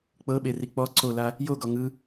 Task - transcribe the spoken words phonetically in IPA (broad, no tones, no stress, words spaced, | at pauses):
k͡pɤɓe rik͡pɔ ǀola | joɡɔ ŋɯ